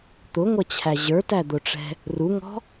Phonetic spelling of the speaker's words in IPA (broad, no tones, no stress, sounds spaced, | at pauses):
t̪ ʊ ŋʷ ʌ t͡ɕʰ æ ʑ ə˞ t æ d̪ ʊ ʈ͡ʂ ɛ̤ | r u ŋ ɔ̤